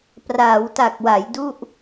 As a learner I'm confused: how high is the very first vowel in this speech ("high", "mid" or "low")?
low